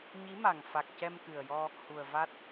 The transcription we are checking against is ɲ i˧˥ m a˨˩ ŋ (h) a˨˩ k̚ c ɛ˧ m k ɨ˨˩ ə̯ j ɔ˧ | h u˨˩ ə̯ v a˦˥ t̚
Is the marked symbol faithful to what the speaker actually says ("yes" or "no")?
no